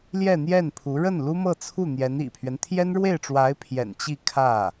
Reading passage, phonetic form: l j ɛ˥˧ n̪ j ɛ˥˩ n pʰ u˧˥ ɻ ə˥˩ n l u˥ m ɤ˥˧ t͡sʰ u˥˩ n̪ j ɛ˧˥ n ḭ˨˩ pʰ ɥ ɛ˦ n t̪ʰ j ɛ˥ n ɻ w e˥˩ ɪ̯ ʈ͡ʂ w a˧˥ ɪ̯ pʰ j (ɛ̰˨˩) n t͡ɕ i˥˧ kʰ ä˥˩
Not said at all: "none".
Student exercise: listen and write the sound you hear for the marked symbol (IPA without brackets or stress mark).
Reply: ɛ̰˨˩